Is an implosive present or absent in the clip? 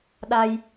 present